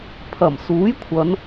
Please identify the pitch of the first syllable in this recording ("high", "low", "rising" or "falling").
low